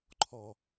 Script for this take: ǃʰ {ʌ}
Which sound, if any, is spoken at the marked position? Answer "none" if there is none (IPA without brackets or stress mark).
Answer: ɔ